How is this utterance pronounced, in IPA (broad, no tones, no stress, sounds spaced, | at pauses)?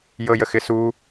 j ɤ j ə x ɪ s u